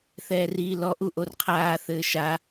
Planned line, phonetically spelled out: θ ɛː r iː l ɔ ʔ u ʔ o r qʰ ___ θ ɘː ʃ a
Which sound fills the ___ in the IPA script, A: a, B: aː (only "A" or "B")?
B